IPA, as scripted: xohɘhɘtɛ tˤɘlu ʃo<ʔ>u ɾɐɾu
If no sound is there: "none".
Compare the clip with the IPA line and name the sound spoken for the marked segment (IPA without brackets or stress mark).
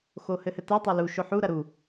ħ